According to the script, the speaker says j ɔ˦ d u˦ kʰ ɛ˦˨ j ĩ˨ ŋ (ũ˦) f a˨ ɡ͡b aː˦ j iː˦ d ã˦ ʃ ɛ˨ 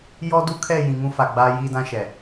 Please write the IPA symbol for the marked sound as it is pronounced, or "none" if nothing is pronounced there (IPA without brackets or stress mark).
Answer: ũ˦